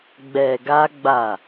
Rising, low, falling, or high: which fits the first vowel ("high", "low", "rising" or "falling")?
low